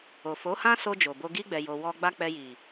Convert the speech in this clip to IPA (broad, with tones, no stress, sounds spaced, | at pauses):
o˨ f o˨˦ h ã˦ s o˧ d͡ʒ o˨ b o˧ ɡ i˦ ɡ͡b ɛ˧ j o˧ w ɔ˧ ɡ͡b a˦ k͡p ɛ˧ j i˨